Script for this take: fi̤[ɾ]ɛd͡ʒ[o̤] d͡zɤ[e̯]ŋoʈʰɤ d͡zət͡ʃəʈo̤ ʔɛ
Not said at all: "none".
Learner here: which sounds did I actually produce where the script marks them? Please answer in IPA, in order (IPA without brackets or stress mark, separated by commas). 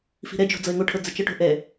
ɾ, o̤, e̯